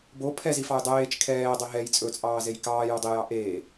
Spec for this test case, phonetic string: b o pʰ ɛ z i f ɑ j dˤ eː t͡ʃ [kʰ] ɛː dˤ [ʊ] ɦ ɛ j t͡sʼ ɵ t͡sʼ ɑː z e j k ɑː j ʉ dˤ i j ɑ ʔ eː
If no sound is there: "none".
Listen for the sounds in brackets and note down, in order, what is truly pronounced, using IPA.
kʰ, ɵ

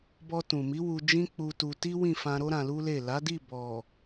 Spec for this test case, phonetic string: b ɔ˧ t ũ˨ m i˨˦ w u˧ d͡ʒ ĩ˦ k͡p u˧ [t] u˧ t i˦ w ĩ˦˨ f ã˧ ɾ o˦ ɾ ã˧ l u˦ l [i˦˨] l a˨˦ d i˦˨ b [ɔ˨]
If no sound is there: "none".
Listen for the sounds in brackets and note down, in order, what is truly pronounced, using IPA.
t, e˦˨, ɔ˨

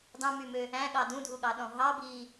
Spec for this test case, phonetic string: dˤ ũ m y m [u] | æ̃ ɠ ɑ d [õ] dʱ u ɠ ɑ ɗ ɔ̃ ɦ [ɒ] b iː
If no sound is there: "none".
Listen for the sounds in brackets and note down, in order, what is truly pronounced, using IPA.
ø, ũ, ɑ

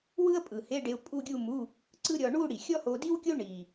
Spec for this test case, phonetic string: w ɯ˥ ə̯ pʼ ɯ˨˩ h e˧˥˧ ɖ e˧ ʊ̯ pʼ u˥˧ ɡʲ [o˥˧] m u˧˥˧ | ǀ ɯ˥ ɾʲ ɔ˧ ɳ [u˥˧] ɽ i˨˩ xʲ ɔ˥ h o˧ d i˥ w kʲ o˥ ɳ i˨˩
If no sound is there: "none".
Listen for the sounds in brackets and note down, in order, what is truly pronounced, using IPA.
u˥˧, u˥˧

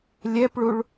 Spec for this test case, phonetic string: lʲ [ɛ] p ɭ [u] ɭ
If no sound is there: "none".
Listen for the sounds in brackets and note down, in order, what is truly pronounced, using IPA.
ɛ, u

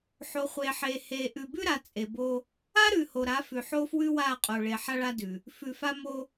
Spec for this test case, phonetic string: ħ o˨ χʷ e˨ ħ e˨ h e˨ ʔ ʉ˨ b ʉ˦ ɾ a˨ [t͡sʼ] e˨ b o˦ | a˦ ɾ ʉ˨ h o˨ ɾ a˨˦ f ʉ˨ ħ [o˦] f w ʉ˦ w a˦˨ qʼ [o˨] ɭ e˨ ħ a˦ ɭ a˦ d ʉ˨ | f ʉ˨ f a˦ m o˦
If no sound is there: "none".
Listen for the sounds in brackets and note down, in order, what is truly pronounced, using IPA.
t͡sʼ, o˦, o˨

